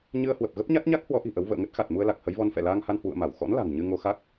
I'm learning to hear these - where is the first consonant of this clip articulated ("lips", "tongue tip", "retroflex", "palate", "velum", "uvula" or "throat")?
palate